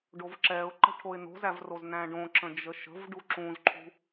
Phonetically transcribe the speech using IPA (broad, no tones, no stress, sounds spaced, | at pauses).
ɖ o v ǁ ɛ ʊ̯ ǃ ə̤ ʈʰ o ɪ̯ n o̤ z æ v r o z n æ̃ ɖ õ ǁ ə̃ d͡ʒ ə ʃ ə̤ v ɖ u ǁ ũ z ǃʰ ṳ